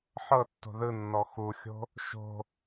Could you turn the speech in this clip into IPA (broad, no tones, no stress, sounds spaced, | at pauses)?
ħ ɤ tː o̤ ð ɯ nː ɔ x u xʲ o̤ | ʃ o̤